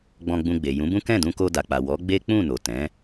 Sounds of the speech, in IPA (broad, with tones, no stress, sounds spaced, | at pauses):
ɡ͡b ɔ̃˧ ɡ͡b ũ˧ ɡ͡b e˨ j ũ˨˦ b ũ˦ k ɛ̃˦˨ d ũ˧ k o˧ d a˨ k͡p a˨ w ɔ˨˦ ɡ͡b e˦ k͡p ũ˦˨ n o˨ t ɛ̃˨˦